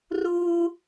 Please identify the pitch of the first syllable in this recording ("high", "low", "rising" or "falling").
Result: high